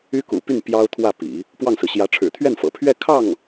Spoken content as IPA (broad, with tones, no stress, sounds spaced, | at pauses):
y˥ k ṵ˨˩ p y˥˩ n p j ɑ˥ ʊ̯ t̪ʰ w ä˥˩ p ḭ˨˩˦ | p w ɑ˥˩ ŋ s ɹ̩˩ ɕ j ä˧˥ ʈ͡ʂʰ ɻ̩˨˩ t̪ʰ ɥ ɛ˥˩ n f ɤ̰˨˩ pʰ ɥ ɛ˥˧ kʰ ɑ˥˩ ŋ